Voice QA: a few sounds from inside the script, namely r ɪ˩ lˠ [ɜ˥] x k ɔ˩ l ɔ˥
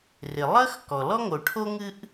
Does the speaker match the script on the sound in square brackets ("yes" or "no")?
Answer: yes